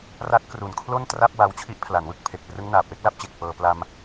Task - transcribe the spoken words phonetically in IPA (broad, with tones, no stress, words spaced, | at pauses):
ra˦˥t̚kru˨˩nkʰlo˥˩n tra˥˩p̚ wa˧wt͡ɕʰi˦˥ʔpʰla˩˦nwɯ˥˩k̚ pʰe˨˩k̚prɯ˦˥ŋ naː˨˩p̚we˦˥k̚la˦˥p̚t͡ɕe˨˩k̚ pɤː˧ pla˧m